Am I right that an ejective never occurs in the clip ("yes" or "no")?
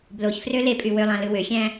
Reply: no